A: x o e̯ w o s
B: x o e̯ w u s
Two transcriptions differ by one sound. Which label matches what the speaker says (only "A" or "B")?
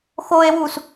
B